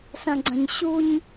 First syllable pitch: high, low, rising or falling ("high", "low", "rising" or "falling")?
low